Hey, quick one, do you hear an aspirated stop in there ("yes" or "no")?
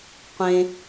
no